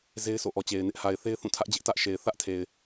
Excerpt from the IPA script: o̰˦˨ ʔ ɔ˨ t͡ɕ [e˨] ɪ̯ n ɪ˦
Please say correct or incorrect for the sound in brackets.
correct